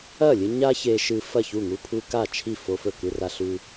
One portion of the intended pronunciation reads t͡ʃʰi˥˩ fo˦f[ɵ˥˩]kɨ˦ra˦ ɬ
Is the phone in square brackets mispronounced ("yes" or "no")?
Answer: no